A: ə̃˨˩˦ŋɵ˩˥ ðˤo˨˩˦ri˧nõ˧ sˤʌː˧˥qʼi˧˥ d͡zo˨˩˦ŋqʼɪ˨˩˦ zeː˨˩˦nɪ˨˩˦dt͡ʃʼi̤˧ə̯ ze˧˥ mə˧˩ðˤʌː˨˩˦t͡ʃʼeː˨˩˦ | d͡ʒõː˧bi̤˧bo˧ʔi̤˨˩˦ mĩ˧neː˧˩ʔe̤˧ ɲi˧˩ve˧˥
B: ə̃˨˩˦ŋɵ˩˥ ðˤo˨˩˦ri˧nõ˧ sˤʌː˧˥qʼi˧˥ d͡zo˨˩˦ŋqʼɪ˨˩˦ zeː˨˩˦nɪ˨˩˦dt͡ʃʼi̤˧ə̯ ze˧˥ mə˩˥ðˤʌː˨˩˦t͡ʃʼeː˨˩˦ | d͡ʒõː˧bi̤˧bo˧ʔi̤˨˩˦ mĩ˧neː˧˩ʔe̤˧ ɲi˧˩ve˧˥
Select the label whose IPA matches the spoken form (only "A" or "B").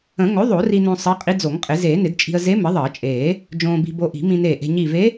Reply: B